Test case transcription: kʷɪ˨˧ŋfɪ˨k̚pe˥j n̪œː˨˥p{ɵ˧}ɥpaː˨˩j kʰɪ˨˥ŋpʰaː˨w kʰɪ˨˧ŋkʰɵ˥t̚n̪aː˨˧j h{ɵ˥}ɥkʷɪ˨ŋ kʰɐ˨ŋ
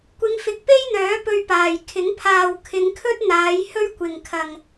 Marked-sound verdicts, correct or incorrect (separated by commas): correct, correct